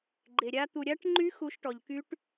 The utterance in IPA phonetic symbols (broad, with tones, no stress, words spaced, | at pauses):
ɡ͡ǃe˧ɾʲa˦˥ t̪u˧ɾʲa˦˥ʈŋ͡ǃy˦˥ xu˦˥ʃʈɔ˧ʎky˦˥ʈ